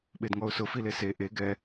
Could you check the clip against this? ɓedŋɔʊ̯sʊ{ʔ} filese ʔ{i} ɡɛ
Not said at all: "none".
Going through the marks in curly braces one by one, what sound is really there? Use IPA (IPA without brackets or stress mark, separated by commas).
none, e